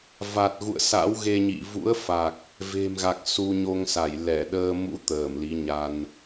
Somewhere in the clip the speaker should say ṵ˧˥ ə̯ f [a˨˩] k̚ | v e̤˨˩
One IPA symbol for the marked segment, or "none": a˨˩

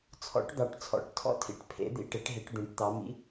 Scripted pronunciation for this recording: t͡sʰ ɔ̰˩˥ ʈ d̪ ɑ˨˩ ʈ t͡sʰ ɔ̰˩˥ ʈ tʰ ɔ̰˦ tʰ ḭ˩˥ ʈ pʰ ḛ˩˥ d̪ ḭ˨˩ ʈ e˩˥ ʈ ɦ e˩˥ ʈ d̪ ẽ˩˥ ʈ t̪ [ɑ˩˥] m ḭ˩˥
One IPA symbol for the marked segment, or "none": ɑ˩˥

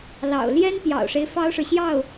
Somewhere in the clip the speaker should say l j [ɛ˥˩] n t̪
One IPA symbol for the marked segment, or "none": ɛ˥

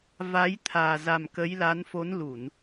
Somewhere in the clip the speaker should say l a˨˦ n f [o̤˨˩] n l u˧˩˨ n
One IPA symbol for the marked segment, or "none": o˨˦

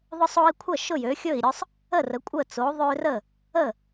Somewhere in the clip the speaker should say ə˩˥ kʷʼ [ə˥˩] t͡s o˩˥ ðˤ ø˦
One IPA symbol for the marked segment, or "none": ə˥˩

